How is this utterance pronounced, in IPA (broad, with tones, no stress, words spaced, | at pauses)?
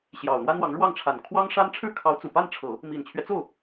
ɕjɑ˨˩ʊ̯n̪wa˥nwɑ˧˥ŋ ɻwɑ˥˩ŋʈ͡ʂʰa˨˩n kʰwɑ˥ŋʂa˥n ʈ͡ʂʰɻ̩˥˩kʰɑ˧˥ʊ̯ t͡su˨˩ pa˥˩nʈ͡ʂʰɤ˨˩˦ | mi˨˩nt͡ɕʰɥɛ˦t͡so˥˩ʊ̯